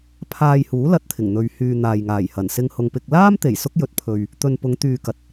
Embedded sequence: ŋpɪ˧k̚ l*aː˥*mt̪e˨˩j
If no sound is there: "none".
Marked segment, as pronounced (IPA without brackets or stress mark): aː˥